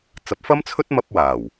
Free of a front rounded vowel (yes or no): yes